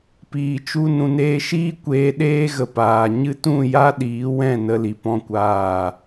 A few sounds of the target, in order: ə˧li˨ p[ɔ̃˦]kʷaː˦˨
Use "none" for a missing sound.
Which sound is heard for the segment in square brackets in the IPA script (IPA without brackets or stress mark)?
ɔ̃˦